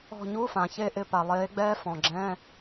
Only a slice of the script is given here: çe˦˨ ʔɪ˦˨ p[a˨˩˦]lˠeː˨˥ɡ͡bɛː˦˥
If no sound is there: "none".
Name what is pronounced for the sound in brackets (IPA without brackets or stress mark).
a˨˩